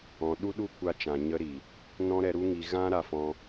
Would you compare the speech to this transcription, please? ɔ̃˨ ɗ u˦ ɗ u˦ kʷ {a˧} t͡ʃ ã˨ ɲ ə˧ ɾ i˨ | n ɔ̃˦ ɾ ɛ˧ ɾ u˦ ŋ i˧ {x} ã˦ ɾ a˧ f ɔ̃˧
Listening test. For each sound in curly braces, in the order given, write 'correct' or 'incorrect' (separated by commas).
correct, incorrect